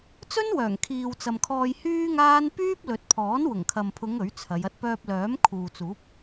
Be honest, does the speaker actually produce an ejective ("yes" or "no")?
no